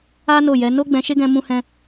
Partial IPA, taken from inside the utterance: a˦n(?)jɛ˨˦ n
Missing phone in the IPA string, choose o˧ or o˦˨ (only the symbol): o˦˨